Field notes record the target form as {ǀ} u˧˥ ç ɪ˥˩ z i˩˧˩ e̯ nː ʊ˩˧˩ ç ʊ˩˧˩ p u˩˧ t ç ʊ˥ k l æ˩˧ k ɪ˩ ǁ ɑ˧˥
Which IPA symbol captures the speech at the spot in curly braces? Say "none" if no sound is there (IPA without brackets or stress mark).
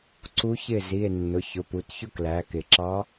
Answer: ǀ